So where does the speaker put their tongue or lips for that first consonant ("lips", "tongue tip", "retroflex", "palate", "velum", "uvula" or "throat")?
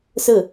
tongue tip